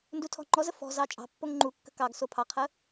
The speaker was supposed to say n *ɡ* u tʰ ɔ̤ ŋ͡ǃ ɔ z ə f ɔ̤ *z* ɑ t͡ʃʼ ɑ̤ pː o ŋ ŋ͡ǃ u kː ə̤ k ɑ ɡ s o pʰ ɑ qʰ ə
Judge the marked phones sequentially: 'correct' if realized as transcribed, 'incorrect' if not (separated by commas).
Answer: incorrect, correct